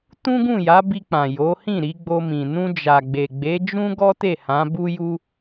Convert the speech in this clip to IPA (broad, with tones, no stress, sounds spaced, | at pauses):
t ũ˦ ɡ ũ˦˨ j a˨˦ b i˧ k͡p ã˨ j o˨˦ h ĩ˦˨ ɾ i˨˦ ɡ͡b o˧ m ĩ˨ n ũ˧ d͡ʒ a˨ ɡ͡b e˨ ɡ͡b e˨˦ d͡ʒ ũ˦ ɡ ɔ˦ t e˦˨ h ã˨˦ b u˦ j u˦